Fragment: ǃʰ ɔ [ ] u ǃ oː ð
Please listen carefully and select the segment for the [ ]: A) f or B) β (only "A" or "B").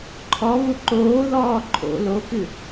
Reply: B